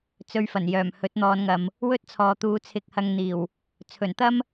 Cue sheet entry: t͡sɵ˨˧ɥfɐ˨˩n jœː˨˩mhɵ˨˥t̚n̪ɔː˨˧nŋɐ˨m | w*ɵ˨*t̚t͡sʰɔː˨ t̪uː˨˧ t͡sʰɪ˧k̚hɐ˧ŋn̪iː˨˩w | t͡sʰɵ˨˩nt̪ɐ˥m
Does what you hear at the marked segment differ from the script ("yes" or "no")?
yes